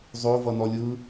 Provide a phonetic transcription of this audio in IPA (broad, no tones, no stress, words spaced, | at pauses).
zˤo vʌnɔlʲɯ